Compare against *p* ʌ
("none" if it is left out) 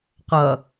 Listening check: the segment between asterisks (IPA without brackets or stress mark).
q